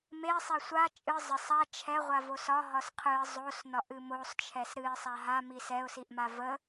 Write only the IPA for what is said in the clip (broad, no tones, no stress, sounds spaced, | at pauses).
m e sˤ ɛ sʷ a t͡ʃʼ ɨ zˤ ə sˤ a t͡ʃʰ ɛ ʁʷ a v o s ɒ ɦ ɒ s qʰ ɨ ə̯ zˤ o s n ɒ ʔ ɨ m o sˤ t͡ʃʰ ɛ s ɾ ɨ ɪ̯ sˤ a ɦ a m i s ɛ ʊ̯ s i ʔ m a v ə